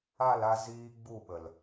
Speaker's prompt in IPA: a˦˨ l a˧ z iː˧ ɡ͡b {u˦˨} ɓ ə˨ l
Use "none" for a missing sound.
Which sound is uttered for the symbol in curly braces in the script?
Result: u˦˨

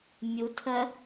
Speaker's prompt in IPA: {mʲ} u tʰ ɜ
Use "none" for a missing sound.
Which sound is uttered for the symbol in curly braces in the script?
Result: mʲ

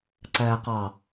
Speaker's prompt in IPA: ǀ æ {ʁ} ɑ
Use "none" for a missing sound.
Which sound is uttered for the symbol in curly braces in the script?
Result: q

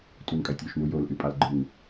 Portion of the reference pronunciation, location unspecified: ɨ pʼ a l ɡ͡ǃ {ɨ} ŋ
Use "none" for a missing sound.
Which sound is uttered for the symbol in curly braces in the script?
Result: ɨ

